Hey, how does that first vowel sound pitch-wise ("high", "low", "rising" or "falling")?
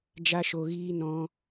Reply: high